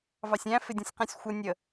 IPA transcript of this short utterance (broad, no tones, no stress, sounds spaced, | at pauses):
v ɑ sʲ æ̃ f ɪ dʲ ũ sʲ q æ̃ sʲ xʷ ʌ nʲ ə